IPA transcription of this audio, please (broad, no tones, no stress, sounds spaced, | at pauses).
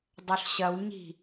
dˤ œ ɬ ɕ ɐ w ɲ i̤